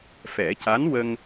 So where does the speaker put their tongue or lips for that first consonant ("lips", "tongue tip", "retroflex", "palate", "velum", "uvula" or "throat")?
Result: lips